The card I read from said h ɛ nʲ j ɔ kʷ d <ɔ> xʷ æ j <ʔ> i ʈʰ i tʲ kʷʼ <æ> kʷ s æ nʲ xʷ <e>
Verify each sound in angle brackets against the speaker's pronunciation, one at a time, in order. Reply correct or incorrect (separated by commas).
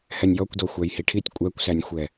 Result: correct, incorrect, correct, incorrect